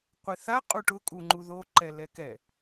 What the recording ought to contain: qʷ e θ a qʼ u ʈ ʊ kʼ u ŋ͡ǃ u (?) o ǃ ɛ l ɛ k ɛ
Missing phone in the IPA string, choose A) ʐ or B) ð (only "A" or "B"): B